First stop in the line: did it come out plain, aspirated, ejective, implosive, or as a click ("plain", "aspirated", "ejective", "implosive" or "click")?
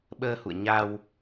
implosive